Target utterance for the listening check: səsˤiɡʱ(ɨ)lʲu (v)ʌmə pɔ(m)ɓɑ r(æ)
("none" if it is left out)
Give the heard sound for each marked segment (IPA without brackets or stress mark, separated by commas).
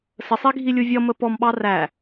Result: i, vʲ, m, æ